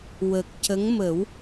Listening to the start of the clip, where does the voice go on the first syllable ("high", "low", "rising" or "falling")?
low